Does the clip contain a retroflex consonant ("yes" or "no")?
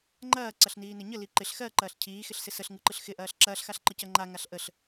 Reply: no